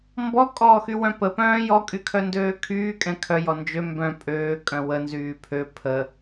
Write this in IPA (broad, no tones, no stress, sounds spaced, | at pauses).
m b ɔ kʼ ɔː x y w œ̃ p ə p œ̃ː j ɔ kʼ y kʰ œ n d øː kʰ yː kʼ ɛ̃ kʰ œ j ɔ n d͡ʒ ø m b œ̃ pʼ øː kʼ œ̃ w ə n z yː pʰ ø pʰ ə